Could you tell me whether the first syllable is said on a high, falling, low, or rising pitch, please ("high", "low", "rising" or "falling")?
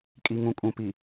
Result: low